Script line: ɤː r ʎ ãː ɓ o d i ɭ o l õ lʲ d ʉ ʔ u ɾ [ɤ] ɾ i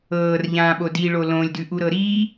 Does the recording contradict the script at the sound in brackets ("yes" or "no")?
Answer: no